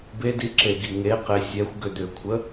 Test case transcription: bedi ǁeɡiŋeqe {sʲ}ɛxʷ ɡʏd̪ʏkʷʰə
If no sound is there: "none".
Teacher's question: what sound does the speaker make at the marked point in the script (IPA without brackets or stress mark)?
sʲ